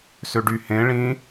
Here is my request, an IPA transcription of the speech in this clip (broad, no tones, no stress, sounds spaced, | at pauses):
s ø ɖ y h ẽ ɭ ĩ